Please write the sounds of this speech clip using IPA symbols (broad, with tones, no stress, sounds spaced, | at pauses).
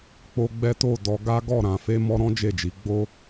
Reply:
k͡p o˦ ɡ͡b ɛ˦ t o˦˨ d ɔ˧ ɡ a˦ ɡ ɔ˦˨ ɾ ã˧ f e˦ m ɔ˦ ɾ ɔ̃˦ d͡ʒ e˦˨ d͡ʒ i˨˦ ɡ͡b o˦